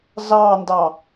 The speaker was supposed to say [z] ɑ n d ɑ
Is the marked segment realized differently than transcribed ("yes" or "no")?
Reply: no